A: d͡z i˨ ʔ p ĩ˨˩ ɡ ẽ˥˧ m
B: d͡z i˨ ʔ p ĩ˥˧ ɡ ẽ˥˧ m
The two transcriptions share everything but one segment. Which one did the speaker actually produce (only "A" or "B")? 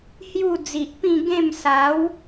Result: B